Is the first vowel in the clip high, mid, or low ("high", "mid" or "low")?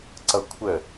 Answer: mid